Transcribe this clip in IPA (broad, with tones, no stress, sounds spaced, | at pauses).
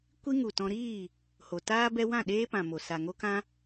kʷ i˦ ŋ u˨ t ɔ̃˧ ɾ iː˦˨ | h o˨ t aː˦ b ɛ˧ w ã˦˨ ɗ eː˦ p ã˨ m o˨ s a˨ ŋ o˦ k ã˦